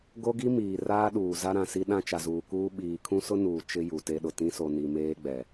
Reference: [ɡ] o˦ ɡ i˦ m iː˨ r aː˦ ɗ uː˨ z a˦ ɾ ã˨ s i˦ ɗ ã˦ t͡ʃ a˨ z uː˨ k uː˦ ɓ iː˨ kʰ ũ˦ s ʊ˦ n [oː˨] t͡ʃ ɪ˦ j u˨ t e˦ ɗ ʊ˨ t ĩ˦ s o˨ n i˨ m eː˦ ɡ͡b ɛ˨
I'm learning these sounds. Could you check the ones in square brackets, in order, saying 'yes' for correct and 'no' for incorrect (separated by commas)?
yes, no